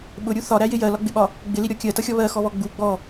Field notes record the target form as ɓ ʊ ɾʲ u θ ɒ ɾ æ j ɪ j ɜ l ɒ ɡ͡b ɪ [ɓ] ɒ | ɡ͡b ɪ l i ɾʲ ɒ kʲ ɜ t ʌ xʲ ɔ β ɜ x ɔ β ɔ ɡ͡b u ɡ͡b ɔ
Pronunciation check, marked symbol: correct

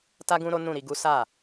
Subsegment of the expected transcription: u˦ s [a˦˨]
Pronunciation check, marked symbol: correct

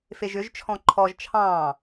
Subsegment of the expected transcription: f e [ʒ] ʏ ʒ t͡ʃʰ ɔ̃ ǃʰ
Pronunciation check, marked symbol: correct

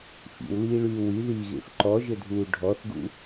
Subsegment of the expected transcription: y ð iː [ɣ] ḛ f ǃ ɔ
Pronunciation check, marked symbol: correct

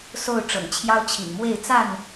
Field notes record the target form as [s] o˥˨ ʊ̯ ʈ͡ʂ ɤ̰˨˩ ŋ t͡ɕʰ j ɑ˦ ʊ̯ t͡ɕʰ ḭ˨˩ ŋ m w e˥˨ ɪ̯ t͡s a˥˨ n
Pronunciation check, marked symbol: correct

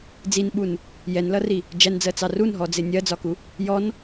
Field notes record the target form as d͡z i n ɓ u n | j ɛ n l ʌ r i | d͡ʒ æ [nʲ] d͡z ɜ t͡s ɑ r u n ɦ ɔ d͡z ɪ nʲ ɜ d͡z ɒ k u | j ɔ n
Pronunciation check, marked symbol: incorrect: n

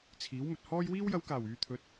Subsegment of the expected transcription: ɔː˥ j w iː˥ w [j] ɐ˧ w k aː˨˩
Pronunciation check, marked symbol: correct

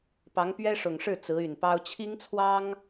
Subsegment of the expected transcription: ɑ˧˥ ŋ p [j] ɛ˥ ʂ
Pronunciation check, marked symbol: incorrect: ɥ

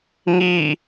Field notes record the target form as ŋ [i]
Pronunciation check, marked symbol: correct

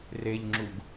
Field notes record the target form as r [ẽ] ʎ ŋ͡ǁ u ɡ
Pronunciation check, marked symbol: incorrect: e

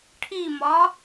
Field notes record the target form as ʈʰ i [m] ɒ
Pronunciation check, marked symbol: correct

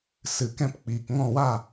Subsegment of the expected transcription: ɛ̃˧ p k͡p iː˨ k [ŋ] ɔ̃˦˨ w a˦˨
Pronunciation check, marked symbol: correct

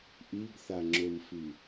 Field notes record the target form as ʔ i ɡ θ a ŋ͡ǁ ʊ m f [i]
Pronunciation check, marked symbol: correct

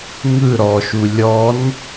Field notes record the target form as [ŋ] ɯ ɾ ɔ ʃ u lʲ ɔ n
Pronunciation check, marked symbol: correct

